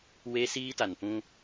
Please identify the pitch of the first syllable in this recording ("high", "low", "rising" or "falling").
high